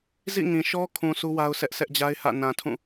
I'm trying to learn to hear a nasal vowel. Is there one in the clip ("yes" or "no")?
yes